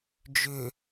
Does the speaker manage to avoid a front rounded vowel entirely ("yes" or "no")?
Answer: no